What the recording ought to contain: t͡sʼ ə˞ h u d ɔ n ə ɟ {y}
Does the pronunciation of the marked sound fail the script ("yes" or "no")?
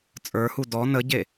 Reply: yes